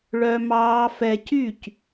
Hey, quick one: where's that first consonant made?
retroflex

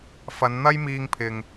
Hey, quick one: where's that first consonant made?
lips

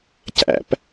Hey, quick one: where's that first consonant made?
palate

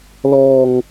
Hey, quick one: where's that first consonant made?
tongue tip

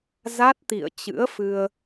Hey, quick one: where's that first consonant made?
tongue tip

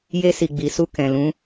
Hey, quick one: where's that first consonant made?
palate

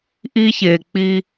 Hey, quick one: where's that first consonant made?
throat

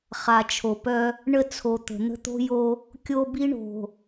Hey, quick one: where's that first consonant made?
uvula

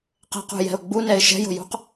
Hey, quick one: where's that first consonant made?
uvula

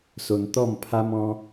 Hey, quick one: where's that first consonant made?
tongue tip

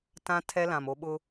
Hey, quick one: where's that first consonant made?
tongue tip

